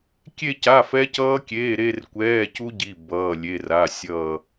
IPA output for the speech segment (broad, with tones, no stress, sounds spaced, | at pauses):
kʲ e˥˧ c a˧˥˧ f ɛ˦˥ c ʌː˦˥ kʲ eː˧˥˧ ɾ e˥˧ r kʷ ɛː˧˥˧ c u˦˥ ɟ i˧˥˧ b ʌː˧˥˧ lʲ e˧˥˧ r a˧˥˧ sʲ ʌː˥˧